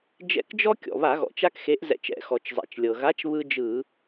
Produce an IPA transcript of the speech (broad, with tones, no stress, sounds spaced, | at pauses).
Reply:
d͡ʒ ɛ̰˧˩ k d͡ʒ ɔ˦ kʲ ɔ̰˩ β a˧˩˧ ɣ ɔ̰˩ t͡ʃ a˦ k x e˨˥ ʔ z ɛ̰˧˩ t͡ʃ ɛ̰˧˩˧ x ɔ˩ t͡ʃ zˤ ɛ̰˩ t͡ʃ lʲ ɤ˩ ɣ a˨˥ t͡ʃ β ɯ˦ d͡ʒ ɯ˧˩˧